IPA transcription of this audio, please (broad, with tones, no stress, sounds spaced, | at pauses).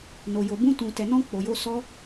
n o˨ j o˨ b ũ˧ t ũ˨ t ɛ˨ n ɔ̃˧ k͡p o˨ j o˧ s ɔ˧